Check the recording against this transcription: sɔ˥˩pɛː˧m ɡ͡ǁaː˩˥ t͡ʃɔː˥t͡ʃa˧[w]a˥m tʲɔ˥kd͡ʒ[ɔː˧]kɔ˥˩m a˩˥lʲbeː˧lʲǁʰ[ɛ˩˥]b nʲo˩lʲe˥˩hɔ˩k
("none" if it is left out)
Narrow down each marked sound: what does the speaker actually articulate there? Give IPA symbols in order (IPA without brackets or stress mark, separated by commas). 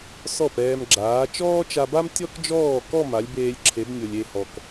b, ɔː˥˩, e˩˥